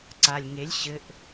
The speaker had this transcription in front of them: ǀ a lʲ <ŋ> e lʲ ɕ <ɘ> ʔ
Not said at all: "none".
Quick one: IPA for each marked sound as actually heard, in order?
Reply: ŋ, ɘ

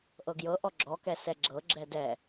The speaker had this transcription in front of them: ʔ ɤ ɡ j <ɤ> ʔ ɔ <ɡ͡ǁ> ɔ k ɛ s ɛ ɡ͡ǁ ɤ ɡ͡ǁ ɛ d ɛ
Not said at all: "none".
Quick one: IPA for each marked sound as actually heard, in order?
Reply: ɤ, ɡ͡ǁ

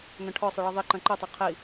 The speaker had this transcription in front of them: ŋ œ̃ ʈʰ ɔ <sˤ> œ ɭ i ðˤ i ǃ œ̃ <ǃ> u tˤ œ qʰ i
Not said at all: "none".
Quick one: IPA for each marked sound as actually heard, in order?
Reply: sˤ, ǃ

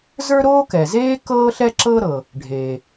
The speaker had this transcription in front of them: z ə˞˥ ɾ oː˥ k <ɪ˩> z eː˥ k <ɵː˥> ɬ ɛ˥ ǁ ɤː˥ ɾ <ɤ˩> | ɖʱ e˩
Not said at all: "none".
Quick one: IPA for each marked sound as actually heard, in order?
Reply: ɛ˩, ɤː˥, ɤ˩

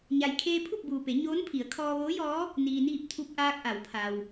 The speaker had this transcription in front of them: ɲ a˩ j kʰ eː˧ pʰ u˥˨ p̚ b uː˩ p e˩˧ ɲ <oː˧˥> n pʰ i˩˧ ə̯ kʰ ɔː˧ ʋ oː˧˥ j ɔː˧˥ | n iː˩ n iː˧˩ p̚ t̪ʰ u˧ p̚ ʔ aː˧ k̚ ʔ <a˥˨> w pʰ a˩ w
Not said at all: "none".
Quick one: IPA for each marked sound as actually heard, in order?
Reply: oː˧˥, a˩˧

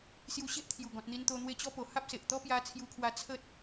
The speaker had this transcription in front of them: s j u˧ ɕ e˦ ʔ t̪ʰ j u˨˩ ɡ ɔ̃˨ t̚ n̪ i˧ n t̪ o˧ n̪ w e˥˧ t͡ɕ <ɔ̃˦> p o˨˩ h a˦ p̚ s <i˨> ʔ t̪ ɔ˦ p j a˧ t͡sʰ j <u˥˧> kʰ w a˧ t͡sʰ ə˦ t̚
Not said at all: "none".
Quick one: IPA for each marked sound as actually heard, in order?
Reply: ɔ˦, e˨, u˧

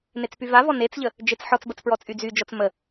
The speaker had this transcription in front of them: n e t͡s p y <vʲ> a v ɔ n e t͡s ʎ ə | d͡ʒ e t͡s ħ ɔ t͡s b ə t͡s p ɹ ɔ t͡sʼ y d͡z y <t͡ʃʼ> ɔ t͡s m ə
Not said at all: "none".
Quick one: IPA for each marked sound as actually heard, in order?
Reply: v, d͡ʒ

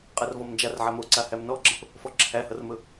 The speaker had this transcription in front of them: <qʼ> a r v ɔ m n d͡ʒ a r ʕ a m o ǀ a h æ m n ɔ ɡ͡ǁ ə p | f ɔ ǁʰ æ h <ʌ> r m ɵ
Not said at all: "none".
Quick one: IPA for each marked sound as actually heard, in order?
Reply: qʼ, ʌ

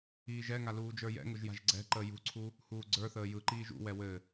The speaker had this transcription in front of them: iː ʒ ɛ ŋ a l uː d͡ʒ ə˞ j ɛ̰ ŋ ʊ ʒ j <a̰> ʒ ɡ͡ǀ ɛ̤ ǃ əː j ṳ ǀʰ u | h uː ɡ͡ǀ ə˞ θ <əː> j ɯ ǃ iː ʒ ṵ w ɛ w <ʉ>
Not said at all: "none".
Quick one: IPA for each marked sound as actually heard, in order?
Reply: a̤, əː, ɘ

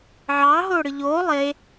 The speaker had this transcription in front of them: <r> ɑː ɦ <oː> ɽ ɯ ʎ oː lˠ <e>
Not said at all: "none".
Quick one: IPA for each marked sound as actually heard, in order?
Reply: ʕ, oː, e

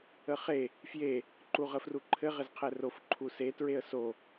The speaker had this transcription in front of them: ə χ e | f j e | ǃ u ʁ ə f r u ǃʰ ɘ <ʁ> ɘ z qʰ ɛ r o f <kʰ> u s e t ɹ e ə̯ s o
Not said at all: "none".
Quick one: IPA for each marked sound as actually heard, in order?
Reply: ʁ, ǃʰ

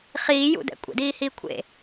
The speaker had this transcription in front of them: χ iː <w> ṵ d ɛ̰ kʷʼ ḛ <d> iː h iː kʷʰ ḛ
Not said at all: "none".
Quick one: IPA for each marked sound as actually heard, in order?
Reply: j, d

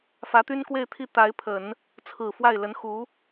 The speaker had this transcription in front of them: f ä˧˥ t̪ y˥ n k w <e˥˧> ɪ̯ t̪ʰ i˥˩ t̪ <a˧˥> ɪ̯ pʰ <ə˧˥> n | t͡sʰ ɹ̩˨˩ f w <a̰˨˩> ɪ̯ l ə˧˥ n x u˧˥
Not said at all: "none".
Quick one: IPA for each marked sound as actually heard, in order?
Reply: e˥˧, a˧˥, ə˨˩˦, a˥˩

